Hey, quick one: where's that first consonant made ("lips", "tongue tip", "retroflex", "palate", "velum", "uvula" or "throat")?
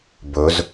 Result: lips